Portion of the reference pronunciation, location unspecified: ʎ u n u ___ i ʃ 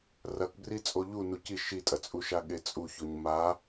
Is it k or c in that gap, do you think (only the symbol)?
c